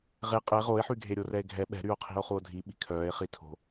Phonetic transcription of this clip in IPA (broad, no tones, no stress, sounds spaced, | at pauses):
ʁ e qʼ ə e̯ ʁ o e̯ ħ y ɡʱ e ɾʲ o r ɛ e̯ ɡʱ ɛ ɓ ɛ̤ ɾ y o̯ qʰ i̤ o̯ χ u o̯ dʱ i ɓ i̤ kʰ œː e̯ χ i tʰ o̤